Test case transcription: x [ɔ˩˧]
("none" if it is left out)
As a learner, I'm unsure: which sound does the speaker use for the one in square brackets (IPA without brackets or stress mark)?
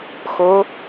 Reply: o˩˧